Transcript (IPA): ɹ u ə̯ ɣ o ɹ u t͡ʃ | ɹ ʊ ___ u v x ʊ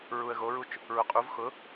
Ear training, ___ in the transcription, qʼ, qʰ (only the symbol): qʼ